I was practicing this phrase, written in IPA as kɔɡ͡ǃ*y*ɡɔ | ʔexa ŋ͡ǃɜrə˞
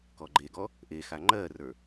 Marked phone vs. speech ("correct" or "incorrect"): incorrect